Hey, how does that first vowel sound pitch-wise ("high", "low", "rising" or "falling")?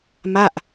falling